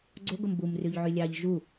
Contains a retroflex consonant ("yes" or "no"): no